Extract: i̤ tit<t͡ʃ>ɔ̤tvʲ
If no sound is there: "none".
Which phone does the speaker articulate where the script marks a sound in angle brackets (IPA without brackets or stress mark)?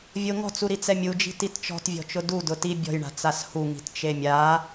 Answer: t͡ʃ